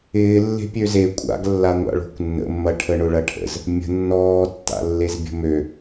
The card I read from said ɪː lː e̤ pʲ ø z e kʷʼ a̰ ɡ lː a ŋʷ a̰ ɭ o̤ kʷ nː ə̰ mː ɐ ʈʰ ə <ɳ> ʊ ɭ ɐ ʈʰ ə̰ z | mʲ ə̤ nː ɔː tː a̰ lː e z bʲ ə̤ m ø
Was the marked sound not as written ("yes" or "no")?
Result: no